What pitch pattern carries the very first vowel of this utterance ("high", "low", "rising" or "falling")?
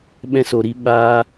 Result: high